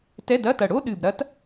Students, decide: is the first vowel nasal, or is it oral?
oral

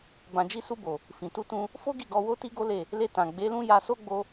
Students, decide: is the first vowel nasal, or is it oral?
nasal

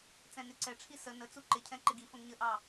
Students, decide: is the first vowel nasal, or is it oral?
nasal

